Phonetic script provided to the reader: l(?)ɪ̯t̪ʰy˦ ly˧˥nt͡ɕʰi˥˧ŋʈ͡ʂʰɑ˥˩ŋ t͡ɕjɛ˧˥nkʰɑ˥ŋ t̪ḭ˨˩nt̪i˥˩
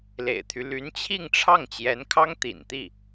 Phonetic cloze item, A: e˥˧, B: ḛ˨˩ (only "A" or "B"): B